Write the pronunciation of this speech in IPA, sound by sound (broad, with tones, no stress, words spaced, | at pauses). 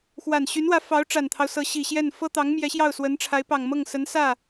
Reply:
xwa˨˩nɕy˧˥nwä˧˥ fɑ˧˥ʊ̯ʈ͡ʂa˨˩nt̪ʰɑ˦ʊ̯ sɤ˧˥ɕi˨˩ɕjɛ˥˩n fɤ˥t̪ɑ˧˥ŋ mjɛ˧˥ɕjɑ˥˩ʊ̯swə˧˥n ʈ͡ʂʰa˧˥ɪ̯pɑ˨˩ŋmɤ˥˩ŋ sə˧˥nsä˥˩